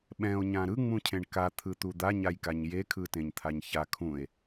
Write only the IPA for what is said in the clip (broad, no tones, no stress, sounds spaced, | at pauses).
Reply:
ɓ ɛ̃ o̯ ɲ ã ɾ ɯ ŋ͡m ũ cʰ ẽ ɳ k a t̪ʰ ɯ t̪ u d̪ a ɲ a j k a ɲ j e kʰ ɯ t ẽ ɲ t̪ʰ a ɲ ç a kʰ ũ e̯